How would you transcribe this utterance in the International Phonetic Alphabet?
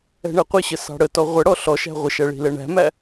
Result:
ɛ̤ ɳ ɛ qʷ ɪ ɕ ə s ɑ̤ ɽ ə t ɔ ʁʷ ə ɽ ɔ ɬ ɔ ʃ æ̤ ʁʷ ɪ ʃ æ ɭ i̤ l ɛ ɳ æ̤ m æ

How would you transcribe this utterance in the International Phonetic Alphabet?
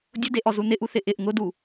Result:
dʲ ʊ d e ʔ ɔ z u n ɪ ʔ u θ ɪ ʔ ɪ ʔ ŋ ʊ d u

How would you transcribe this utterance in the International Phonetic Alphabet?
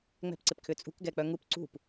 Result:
ŋ͡m ɛ̤ p ǀ ɪ p kʰ ʏ t͡sʼ ṳ k ɡ ɛ k͡p œ ŋ u p ǀ ṳ p

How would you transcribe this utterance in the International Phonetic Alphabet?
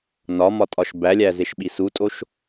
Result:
n ɒ m ɒ tʼ ɒ ʃ b æ lʲ æ z e ʃ ɓ i s u tʼ o ʃ

